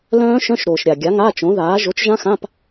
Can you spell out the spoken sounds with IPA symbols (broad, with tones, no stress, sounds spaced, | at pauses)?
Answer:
l œ̃ː˦˥ ʃ œ̃˧˥˧ ʃ ɾ oː˨ ʃ ɾʲ a˨ ɡʲ a˨˥ ŋ a˧˥˧ t͡ʃ õ˨˥ ð aː˨˥ ʒ o˨˥ t͡ʃ ʒ ã˦˥ x ã˧˥˧ p